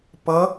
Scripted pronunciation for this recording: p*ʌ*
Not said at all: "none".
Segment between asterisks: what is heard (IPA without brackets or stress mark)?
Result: ʌ